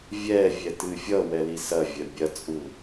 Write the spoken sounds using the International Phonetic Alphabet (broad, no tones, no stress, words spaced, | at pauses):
vʲɛvʲɛtɨ fʲʌwɛli sɐvʲɐ bʲɐt͡sʼu